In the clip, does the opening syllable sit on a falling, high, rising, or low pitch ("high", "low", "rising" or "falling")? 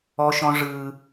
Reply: high